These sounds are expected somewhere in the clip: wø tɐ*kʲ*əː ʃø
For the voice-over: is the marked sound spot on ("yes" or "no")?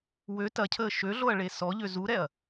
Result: no